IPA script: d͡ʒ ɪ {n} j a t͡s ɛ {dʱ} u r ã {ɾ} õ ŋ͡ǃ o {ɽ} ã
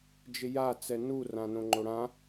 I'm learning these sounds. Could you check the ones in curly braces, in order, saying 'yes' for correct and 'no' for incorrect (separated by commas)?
no, no, no, yes